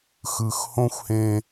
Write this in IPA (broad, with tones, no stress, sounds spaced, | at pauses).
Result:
x ɯ˨ x h õ˦ xʷ h ẽ˦